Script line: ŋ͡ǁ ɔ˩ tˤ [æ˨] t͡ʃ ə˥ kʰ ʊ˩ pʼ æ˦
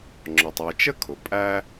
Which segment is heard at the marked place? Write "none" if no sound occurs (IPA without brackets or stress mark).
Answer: æ˨